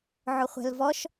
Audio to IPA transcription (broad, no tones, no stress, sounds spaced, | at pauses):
ʕ ʊ χʷ ɛ̤ l v ɔ ʃ